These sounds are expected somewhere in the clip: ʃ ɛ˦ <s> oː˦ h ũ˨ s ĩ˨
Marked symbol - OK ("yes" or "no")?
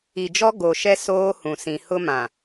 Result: yes